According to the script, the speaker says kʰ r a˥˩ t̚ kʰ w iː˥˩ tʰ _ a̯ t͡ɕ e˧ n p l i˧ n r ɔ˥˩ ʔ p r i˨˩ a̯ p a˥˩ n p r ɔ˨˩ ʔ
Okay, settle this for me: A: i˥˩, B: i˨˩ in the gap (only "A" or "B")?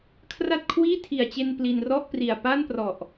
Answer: B